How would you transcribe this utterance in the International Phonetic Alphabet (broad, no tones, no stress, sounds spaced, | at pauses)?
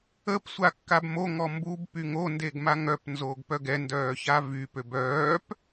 ə p sʷ a kː a b m o ŋ ɔ m b u b p y ŋ o n d e ɡ m a ŋ œ p n z oː ɡ p œ ɡ ɛ n d œː ç a v y p ø b œː p